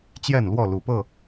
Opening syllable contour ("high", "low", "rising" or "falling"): falling